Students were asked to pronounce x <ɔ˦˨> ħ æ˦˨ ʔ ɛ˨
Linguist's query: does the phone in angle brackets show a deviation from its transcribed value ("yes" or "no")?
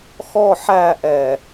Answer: no